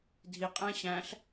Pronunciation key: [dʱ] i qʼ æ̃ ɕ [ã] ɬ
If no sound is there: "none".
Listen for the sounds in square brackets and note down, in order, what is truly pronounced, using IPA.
dʱ, æ̃

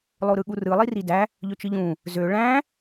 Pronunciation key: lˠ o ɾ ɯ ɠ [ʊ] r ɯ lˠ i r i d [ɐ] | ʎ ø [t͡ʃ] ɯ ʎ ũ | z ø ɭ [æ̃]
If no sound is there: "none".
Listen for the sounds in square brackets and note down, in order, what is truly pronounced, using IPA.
u, æ, t͡ʃ, æ̃

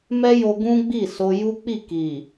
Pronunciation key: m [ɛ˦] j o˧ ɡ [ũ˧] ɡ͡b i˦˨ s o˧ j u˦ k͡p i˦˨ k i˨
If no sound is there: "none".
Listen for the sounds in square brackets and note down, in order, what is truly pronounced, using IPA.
ɛ˦, ũ˦

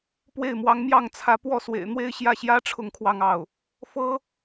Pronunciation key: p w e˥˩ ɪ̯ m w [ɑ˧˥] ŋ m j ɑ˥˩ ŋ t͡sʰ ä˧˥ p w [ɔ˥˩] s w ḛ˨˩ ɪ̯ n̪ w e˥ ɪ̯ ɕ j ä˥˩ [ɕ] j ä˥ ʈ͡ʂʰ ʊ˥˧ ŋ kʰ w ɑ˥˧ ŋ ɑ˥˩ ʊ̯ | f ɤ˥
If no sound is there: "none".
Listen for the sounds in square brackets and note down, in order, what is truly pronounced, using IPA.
ɑ˧˥, ɔ˥˩, ɕ

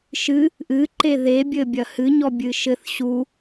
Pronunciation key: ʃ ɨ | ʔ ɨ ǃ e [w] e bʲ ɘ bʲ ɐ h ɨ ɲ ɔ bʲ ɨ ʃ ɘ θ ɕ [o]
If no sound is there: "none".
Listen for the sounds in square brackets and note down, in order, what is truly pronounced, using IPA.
ð, u

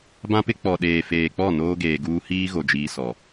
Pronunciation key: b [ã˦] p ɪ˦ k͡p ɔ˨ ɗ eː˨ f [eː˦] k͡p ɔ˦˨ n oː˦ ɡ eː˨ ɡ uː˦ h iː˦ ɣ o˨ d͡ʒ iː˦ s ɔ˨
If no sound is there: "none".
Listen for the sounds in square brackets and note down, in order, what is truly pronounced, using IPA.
ã˦, eː˨

